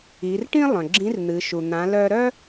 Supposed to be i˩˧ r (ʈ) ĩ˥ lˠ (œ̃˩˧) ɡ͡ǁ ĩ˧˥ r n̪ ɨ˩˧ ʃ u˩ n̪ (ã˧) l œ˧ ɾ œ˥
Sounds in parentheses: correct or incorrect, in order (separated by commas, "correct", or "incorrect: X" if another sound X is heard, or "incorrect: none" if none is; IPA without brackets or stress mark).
correct, incorrect: œ̃˩, incorrect: ã˩˧